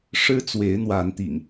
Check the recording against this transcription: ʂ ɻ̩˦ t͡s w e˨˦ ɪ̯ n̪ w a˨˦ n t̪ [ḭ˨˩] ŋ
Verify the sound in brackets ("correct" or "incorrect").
correct